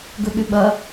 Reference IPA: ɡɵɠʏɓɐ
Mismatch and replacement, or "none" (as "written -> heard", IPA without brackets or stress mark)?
none